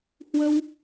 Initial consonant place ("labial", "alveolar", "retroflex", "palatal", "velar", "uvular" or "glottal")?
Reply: glottal